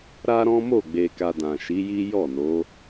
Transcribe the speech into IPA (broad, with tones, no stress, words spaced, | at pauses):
ɾa˦ɾɔ̃˦ mo˦˨ ɡ͡be˧ka˧dã˨ ʃi˨˦ji˦ jɔ˦˨no˨˦